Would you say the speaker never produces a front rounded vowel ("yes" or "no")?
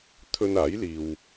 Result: yes